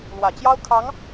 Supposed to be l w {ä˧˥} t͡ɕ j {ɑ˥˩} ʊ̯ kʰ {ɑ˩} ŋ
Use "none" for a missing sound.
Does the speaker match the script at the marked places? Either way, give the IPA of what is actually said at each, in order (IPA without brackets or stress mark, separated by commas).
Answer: ä˨˩, ɑ˥, ɑ˧˥